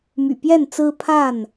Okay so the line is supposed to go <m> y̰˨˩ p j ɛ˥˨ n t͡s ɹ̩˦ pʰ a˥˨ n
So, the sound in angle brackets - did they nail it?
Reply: yes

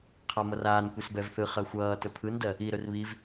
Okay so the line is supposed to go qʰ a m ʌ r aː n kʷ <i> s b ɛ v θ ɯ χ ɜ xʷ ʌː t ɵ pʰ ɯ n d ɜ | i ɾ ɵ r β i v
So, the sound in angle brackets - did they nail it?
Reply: yes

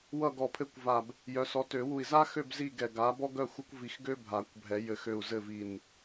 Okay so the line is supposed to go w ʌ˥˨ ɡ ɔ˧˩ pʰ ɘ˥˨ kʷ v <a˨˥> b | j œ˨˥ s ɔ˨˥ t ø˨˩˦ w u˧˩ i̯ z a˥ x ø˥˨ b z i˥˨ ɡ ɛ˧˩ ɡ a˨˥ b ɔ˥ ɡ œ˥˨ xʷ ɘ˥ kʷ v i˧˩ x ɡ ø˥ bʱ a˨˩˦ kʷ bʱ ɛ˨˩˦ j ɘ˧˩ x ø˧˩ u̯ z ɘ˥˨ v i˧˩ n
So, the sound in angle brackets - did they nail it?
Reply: no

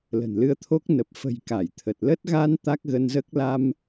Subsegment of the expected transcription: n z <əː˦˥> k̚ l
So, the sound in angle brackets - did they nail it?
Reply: yes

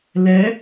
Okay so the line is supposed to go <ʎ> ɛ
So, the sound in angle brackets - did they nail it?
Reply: no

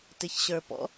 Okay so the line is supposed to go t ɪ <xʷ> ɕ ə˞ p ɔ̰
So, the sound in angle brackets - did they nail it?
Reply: no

